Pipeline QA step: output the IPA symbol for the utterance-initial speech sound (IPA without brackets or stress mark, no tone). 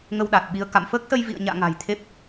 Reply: ŋ